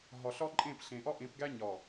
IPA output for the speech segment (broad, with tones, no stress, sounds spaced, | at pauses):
ɦ ɒ˨ ɬ ɒ˦ ǃʼ ẽ˦˨ p ɬ ẽ˨ ʔ ɒ˦ ʔ ẽ˨˦ p ɡ æ˦ ɲ ɒ˨